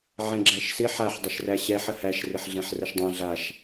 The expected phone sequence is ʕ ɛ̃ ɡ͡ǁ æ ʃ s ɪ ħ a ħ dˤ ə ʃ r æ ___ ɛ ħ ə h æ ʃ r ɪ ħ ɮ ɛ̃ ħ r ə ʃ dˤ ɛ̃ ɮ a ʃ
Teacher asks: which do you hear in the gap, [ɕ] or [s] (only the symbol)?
ɕ